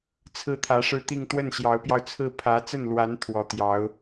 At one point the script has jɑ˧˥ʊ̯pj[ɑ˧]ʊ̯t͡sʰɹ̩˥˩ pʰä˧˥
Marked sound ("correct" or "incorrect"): correct